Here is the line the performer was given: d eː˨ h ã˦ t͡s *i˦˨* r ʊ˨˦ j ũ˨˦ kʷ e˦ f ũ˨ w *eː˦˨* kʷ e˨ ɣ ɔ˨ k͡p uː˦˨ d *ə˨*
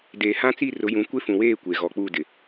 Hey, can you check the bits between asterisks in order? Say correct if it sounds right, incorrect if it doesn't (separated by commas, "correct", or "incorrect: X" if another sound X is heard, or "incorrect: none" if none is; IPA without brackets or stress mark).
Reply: correct, correct, incorrect: ɪ˨